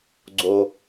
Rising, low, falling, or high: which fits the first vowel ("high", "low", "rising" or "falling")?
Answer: low